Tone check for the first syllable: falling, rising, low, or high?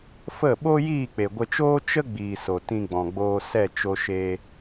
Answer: falling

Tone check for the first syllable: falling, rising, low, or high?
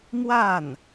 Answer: falling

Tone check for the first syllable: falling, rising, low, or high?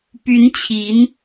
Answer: rising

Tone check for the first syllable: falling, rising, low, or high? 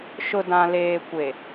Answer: low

